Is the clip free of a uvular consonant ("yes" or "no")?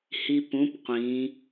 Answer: no